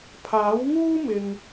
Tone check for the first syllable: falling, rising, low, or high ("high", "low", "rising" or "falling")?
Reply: rising